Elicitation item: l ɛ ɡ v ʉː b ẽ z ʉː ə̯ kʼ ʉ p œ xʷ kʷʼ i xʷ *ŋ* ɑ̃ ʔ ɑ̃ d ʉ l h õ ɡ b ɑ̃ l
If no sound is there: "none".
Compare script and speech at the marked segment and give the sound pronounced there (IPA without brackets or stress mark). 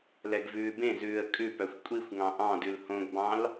ŋ